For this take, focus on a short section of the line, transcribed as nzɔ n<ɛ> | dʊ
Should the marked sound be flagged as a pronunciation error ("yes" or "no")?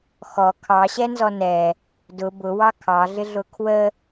no